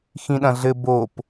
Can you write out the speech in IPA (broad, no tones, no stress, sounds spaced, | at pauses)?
x ĩ ɗ ɐ̃ ɮ ɘ b o p